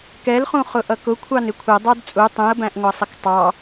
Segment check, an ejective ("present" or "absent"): present